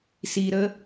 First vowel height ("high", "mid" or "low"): high